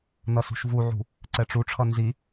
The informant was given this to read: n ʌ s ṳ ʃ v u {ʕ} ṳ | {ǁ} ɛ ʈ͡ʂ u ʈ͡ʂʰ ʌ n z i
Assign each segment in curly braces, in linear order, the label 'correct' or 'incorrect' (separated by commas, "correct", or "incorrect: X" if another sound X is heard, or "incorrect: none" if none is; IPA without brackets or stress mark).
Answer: correct, incorrect: ǀ